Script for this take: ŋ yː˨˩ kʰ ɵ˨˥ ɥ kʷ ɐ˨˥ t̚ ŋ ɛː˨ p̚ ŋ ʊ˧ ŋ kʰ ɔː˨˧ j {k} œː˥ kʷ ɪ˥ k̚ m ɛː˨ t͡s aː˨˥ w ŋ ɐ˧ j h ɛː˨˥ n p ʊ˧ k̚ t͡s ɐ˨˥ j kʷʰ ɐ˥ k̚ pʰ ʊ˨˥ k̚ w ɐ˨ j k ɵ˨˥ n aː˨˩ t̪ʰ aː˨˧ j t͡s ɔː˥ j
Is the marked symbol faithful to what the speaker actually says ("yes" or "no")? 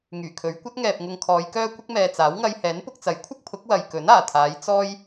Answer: yes